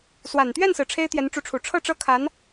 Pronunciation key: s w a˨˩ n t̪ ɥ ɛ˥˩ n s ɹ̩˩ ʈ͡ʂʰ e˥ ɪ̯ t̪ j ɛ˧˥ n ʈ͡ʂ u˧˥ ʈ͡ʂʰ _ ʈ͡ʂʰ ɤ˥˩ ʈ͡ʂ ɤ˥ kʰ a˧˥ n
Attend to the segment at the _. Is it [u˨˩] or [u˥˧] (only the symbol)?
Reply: u˨˩